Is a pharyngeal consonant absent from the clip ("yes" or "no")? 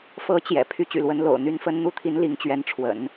yes